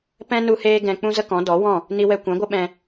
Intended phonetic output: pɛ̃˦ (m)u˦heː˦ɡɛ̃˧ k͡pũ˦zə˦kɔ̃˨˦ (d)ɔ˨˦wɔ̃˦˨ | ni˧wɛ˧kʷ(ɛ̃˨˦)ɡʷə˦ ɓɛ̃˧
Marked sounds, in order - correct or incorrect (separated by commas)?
incorrect, correct, correct